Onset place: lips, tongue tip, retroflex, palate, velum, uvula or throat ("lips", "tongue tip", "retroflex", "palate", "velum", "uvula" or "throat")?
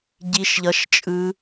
palate